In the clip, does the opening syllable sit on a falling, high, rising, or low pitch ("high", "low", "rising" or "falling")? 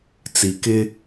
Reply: low